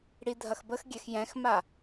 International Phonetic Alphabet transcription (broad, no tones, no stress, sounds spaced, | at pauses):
ɽ i dʱ ɐ x b ə x ɡʲ ɛ x j ɛ̃ x m a